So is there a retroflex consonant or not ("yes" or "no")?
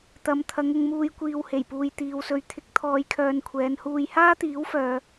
no